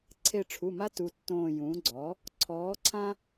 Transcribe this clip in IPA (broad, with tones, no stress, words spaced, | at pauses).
ǀʰe˧˩ʈ͡ʂʰu˩˧˩ma˦ tu˩˧˩tːõː˧˩ jũː˩˥ɡ͡ǀɔ˩˥ | ǀʰɔː˩˥ǀʰã˦